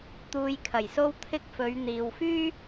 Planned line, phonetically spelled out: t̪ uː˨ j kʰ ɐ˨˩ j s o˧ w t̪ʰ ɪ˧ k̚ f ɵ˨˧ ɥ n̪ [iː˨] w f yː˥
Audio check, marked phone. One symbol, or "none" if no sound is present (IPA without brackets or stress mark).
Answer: iː˨